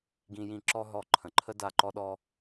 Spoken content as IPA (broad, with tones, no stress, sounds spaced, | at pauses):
ɡ ĩ˧ j ĩ˧˩ ǁ ɔ˧ ɦ ɔ˧˩ ǃʰ ə̃˩ ǃʰ ə˧ d a˧˩ ǃ ɔ˧ ɗ ɔ˧